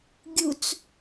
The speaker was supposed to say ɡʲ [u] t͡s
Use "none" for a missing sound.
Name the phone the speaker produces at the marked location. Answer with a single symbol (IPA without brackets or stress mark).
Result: u